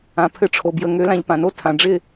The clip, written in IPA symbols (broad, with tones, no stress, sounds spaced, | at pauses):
ã˨ pʰ ɘ˨˦ ʈ͡ʂʰ o˨ b j ə˨ ŋ ø˨˦ l ã˧ ʎ p ã˨ n o˦ tʰ ã˨ ɖ͡ʐ ɪ˦˨